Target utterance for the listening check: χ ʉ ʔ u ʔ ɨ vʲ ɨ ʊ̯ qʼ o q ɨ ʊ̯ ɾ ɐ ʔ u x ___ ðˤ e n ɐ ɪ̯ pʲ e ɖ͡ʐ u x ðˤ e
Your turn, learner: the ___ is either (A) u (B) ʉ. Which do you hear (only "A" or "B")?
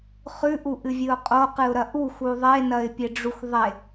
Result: A